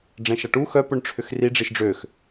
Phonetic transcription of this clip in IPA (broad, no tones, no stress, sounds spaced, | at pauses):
ɖ͡ʐ ɛ̃ ʃ a ʈ u x œ p ʊ ɳ ʈ͡ʂʰ ʏ x r i ɖ͡ʐ i ʃ ɖ͡ʐ ø x